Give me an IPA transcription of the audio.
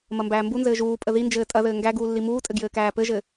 m ɐ m b æː m b u n z ɘː ʒ uː pʼ ə ð i n d͡ʒ ɘː tʼ ɐ ð ɘː ŋ ɡ æ ɡ uː lː i m uː tʼ ɘ ɡ j ɘː k æː p ɘ ʒ ɘ

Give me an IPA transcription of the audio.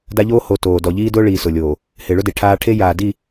d a˦ ʎ oː˦ h o˨ t oː˨ d ɔ˨ ʎ iː˦ d ʊː˦ ɭ iː˨ s ʊ˨ lʲ oː˨ | h ɪː˨ ɭ ʊ˦ d e˨ ʈʰ aː˦ ʈʰ e˦ j aː˨ d i˦˨

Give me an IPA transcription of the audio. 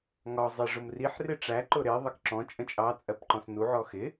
ŋ ɒ zˤ i ʐ ʊ m r i ħ r ɪ ʈ͡ʂ æ ǃ ʊ ɾ ɪ ðˤ ə k ǁ ɔ̃ t͡ʃʼ ə̃ t͡ʃʼ ɑ t͡sʼ ɜ p ǃ ɔ̃ s n u ʕ ɔ x ɪ

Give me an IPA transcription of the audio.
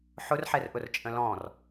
ħ ʊ r ħ ɛ r ʔ ʊ r t͡ʃʼ ə̃ l ɔ̃ r

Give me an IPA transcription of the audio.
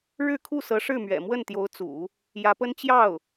ɻ ɻ̩˥˧ kʰ u˥˩ s ɤ˧˥ ʂ ɻ̩˥˩ m ɥ ɛ̰˨˩ m w ə˥˩ n t̪ j o˧˥ ʊ̯ t͡s ṵ˨˩˦ | j ä˧˥ p ə˥ n t͡ɕ j ɑ˥˩ ʊ̯

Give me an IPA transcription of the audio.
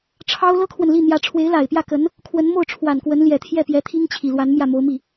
ʈ͡ʂʰ ɑ˥ ʊ̯ l ɤ˥ kʰ w ə˨ n l i˥˩ n̪ j ä˧˥ ʈ͡ʂʰ w e˧˥ ɪ̯ l a˨˩ ɪ̯ p j ä˥˩ k ə˧˥ n | kʰ w ə˧˥ n m o˥˩ ʊ̯ ʈ͡ʂʰ w a˨˩ n k w ə˧˥ n l j ɛ˨˩ t̪ʰ j ɛ˥˩ p j ɛ˧˥ t̪ʰ i˥ ŋ t͡ɕʰ i˨˩ l w a˧˥ n m j ä˥˩ m o˧˥ ʊ̯ m i˥˩

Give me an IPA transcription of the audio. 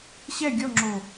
ɕ ɛ ɡʲ ɔ ŋ͡ǁ o

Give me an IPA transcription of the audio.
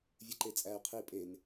vʲ ɨ ǃ e t͡sʼ æ y̯ qʰ i pʼ e n

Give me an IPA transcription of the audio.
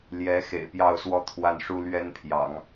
l j ɛ˧˥ x ḛ˨˩ ɪ̯ p j ɑ˥˧ ʊ̯ s w ɔ˥˧ t̪ʰ w a˥˩ n ʂ u˥ l ɥ ɛ˥ n pʰ j ɑ̰˨˩˦ ŋ

